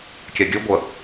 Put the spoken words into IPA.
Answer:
kʲɛɡʲʉɡʷə

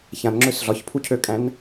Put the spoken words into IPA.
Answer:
çãnŋ͡ǁøs ɮɒçpʰucʰøkʼæ̃n

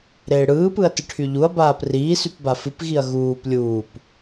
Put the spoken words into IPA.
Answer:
ɾeːɽɯːpɯɐ̯ tɨʈʰyʎuɐ̯baːp riːsyp bafɨpɣiɐ̯ ɣuːp lʲuːp

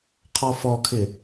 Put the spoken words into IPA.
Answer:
qʰɔfɔkʰɪ

